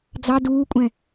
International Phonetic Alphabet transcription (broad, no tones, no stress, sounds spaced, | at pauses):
d͡z ɑ d uː kʷʼ ɛ̃